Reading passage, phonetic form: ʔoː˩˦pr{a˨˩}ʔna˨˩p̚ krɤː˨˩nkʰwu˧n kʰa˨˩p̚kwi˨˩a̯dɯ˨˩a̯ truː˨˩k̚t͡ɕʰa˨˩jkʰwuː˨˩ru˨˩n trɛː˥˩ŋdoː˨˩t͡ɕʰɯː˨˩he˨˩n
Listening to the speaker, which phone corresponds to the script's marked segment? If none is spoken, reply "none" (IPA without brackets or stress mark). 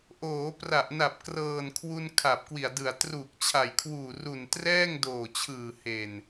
a˨˩